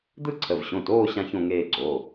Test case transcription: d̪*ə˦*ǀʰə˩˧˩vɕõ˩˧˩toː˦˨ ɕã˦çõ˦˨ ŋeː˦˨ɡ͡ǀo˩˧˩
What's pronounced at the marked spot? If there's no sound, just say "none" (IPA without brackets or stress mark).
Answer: ɯ˦